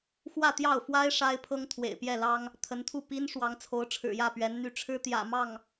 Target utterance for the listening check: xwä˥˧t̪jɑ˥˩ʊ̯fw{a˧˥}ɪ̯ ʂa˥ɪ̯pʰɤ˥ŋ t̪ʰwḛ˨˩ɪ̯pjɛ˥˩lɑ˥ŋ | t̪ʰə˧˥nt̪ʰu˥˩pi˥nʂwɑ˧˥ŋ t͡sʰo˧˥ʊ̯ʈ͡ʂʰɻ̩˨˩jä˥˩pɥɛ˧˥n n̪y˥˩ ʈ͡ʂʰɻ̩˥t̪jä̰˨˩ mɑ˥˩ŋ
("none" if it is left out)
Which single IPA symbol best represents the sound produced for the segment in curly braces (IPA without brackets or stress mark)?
a˥